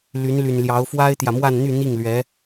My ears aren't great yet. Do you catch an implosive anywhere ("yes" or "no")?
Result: no